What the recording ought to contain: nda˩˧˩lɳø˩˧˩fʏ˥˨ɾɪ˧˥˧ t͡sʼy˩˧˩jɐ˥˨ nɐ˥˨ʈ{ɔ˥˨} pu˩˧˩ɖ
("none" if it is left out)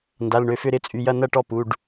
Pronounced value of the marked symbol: ɔ˥˨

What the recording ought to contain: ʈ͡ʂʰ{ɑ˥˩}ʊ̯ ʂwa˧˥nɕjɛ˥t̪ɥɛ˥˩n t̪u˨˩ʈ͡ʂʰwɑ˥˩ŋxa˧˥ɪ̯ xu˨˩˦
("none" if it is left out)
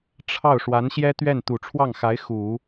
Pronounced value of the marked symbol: ɑ˥˩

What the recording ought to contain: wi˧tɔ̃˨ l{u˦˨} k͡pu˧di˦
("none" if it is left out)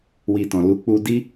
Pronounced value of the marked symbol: u˨˦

